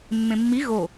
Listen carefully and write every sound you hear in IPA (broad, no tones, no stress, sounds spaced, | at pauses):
mː ẽ mː i ɣ o